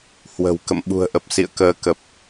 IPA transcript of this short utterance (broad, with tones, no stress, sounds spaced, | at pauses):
h w ə̤˨˩ w k ə̰˧˨ m ɓ ṳ˨˩ ə̯ ʔ ə˨˩ p̚ s ḭ˧˨ ə̯ k əː˨˦ k ə˨˩ p̚